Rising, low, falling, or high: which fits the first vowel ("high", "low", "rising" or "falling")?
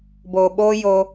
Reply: low